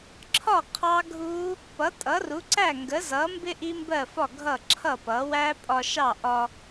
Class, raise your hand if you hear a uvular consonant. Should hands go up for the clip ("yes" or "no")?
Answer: yes